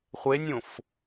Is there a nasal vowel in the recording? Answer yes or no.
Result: yes